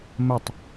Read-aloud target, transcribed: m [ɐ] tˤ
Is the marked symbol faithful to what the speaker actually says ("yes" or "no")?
yes